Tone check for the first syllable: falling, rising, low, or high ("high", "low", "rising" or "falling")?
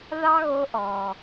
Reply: high